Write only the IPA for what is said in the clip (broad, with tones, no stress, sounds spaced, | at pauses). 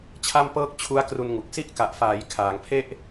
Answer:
t͡ɕʰ a˥˩ m p ɤː˥˩ k̚ t͡ɕʰ u˦˥ a̯ k r u˧ n ŋ u˨˩ k̚ s i˥˩ ʔ k a˨˩ ʔ f aː˩˦ j kʰ aː˩˦ ŋ pʰ e˥˩ ʔ